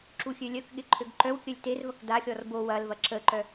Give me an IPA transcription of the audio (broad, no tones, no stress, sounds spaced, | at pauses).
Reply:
ǁ u xʲ ø lʲ œ k ɠ ɪ ǃʰ ø ɡ ǃ œ w kʲ œ lʲ t e r v ɐ k d a xʲ ɔ r b o w ɐ l v ɐ ǁ ə ǃ œ